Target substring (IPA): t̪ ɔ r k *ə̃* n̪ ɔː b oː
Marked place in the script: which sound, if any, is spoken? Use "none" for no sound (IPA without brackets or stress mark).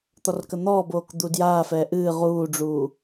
ə